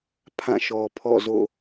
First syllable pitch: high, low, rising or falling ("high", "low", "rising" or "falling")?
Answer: falling